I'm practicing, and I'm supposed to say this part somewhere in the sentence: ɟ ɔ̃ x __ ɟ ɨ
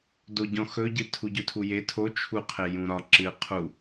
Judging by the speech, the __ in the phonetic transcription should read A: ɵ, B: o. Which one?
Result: A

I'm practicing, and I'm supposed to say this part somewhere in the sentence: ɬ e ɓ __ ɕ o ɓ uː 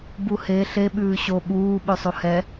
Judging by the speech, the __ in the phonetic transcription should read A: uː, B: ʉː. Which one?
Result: B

